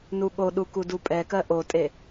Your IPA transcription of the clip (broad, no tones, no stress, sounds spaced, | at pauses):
n u ɠ o ɗ u k u d u pʼ ɛ k ɜ ʔ o tʼ e